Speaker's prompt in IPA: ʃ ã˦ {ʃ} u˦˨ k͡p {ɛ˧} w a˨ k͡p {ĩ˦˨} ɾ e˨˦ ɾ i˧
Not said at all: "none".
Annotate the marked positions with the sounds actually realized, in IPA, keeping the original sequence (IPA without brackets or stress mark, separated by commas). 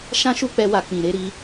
ʃ, ɛ˧, ĩ˨